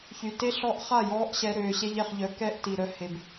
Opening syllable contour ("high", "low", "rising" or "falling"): low